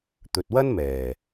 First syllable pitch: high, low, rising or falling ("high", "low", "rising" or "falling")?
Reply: low